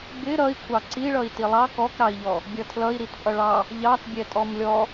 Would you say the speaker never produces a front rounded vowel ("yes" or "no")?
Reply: yes